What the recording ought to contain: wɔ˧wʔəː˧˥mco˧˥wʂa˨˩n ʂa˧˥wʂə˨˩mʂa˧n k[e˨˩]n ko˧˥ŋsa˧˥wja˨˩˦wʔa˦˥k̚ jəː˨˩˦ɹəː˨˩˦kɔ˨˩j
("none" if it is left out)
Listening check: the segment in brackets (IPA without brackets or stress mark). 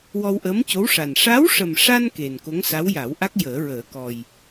e˨˩